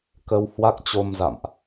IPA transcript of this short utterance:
k ə˧ w h w a˦˥ k̚ t͡ɕ o˧ m z a̰˧˨ m ʔ

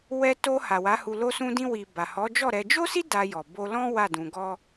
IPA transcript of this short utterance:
w ɛ˧ t o˧ h a˨ w a˨˦ h u˧ l o˧ s ũ˧ d ĩ˧ w i˨ b a˨ h ɔ˨˦ d͡ʒ ɔ˦˨ ɾ ɛ˧ d͡ʒ o˦ s i˦ d a˧ j ɔ˨ b o˧ l ɔ̃˦ w a˦˨ d ũ˧ ɡ ɔ˦

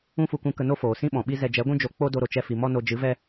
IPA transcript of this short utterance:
ũ˦ f u˧ k ũ˧ k ə˧ n o˦ f oː˨ s ĩ˦ ɓ ɔ̃˨ ɓ i˦ z ɛ˧ d͡ʒ ɛ˨˦ ɡʷ ũ˦ d͡ʒ o˧ k͡p o˦ d o˧ ɾ o˨ t͡ʃ ɛ˧ f i˨ m ɔ˦ n o˧ d͡ʒ ɨ˨˦ v ɛ˦

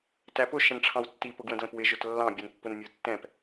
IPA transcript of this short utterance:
t æ p ʊ ʃ ə̃ n ʈ͡ʂʰ ɑ̃ w tː i p ʊ ɡ w ə̃ d l ə̃ p w ɪ ʒ ʊ t lː ɑ̃ bʲ ʊ n pː ʊ n mʲ ə˞ tː ɛ̃ p

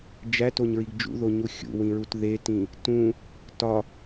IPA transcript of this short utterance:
d͡ʒ æ t o ɲ ɹ i ɡ d͡ʒ ṵ ð o ɲ u xʲ ṵ w ĩ ɹ u t ð e t ĩ | t ũ | t ɒ

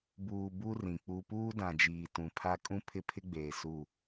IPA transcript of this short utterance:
b uː˨ b u˦ r ĩ˨ k͡p u˦ p uː˦ d ã˨ d͡ʒ iː˨ t ũ˨ pʰ a˦ kʼ ũ˦ pʰ ɪ˦ pʰ ɪ˦ ɡ͡b eː˨ s u˦˨

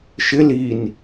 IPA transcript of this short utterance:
ʃ ɪ l i n

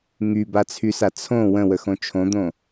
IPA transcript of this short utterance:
ŋ y b a t͡sʰ y s a t͡sʰ õ w ə̃ w ə x õ t͡ʃʰ õ d̪ õ

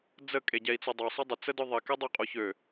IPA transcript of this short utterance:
d͡z ə kʼ e ɟ ɛ i̯ t͡s o dˤ o sˤ ø dˤ ə t͡s ə d œ ðˤ e k ɛ dˤ œ qʼ o ç ø

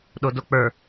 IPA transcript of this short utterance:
ɗ o d o k͡p ə˞

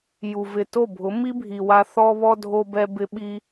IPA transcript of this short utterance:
j u˨ v ɪ˨ t o˦˨ bʱ ʊ˨˦ m i˦ bʱ i˨ w a˧ θ ɔ˧ β ɔ˧ dʱ o˧ b ɛ˧ b ɪ˦ ɓ i˦

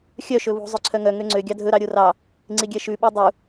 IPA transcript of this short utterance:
xʲ œ ʃ ɵ β ṳ zˤ ø ǀʰ œ ŋ œ ŋ ø ŋ͡ǀ ø ɡʲ ɑ dʱ ɵ ɾ ɑ ɾʲ o r ɑ | ŋ͡ǀ i ɡʲ ɛ ʃ ʉ ɓ i dˤ u

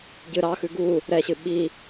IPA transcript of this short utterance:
ɟ ɨ ɾ ɑ x ʉ ɡ u | ɾ ɛ ɕ ɨ ɓ i

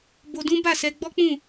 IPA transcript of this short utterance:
b o˧ d ũ˦ b a˦˨ s ɛ˧ ɡ͡b ɔ˦ k͡p ũ˦˨

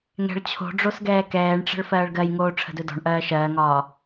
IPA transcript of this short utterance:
ŋ ɛ̤ ɭ t͡ɕʰ o̤ ɖ͡ʐ o s ɡ ɛː k ɛː ɳ ʈ͡ʂ ə̤ ɭ f ɜː ɭ ɡ ɜ j ŋ oː ʈ͡ʂʰ ə̤ d ɵ d ɔ̤ ɳ ʔ ɜː ʃ ɜː ŋ ɒː

